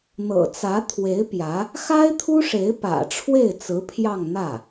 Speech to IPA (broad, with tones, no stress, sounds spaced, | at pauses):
n̪ ɤ̰˨˩ t͡s ä˧˥ t̪ʰ w e˧˥ ɪ̯ p j ä˧˥ | x a˥ ɪ̯ t̪ʰ u˥ ʂ e˧˥ ɪ̯ p ä̰˨˩ ʈ͡ʂʰ w e˥˩ ɪ̯ t͡s ɹ̩˧˥ pʰ j ɑ˥˧ ŋ n̪ ä˥˩